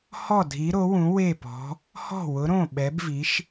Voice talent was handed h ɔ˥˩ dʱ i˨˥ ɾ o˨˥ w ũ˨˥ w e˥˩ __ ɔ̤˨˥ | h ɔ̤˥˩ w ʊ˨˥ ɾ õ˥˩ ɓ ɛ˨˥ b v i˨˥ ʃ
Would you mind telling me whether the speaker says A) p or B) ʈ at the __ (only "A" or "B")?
A